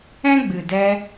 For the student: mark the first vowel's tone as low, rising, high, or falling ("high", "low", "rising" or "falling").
high